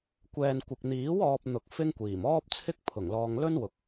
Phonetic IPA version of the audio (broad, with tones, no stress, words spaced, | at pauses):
kʷɛː˨nkʷɪ˨k̚n̪iː˨˥w ɔː˧p̚n̪ʊ˨k̚ fɪ˥ŋkʷiː˨˩m ɔː˥p̚t͡sʰɪ˥k̚ pʰʊ˨˩ŋlɔː˧ŋ lɵ˥n wʊ˧k̚